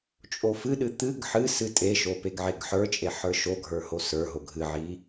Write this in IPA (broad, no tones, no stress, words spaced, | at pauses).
t͡ʃʼofɨɗɨ t̪ɨɡ ħɨ sɨtʼeʃo peɡʕeɡħə˞t͡ʃʼe ħə˞ʃoɡʱə˞ hosə˞ɦo ɡʱɨʕi